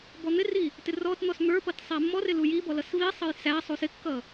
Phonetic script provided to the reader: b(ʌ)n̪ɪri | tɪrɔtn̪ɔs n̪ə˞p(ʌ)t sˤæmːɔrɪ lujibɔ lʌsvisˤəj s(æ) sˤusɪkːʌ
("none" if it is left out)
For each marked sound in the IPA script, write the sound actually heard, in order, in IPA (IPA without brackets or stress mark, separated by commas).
ɔ, ʌ, æ